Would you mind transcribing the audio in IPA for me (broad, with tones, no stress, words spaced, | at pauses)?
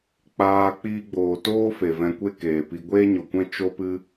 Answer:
k͡paː˧ k͡piː˧ɡ͡boː˨toː˦ fe˨vɛ̃˧kʷe˦ keː˨pi˧ ɡʷeː˦ɲo˨kʷɛ̃˦ t͡ʃo˦pɨ˦